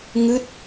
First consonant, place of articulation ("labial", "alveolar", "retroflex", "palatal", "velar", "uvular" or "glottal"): velar